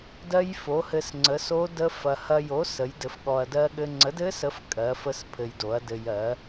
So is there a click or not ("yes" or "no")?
yes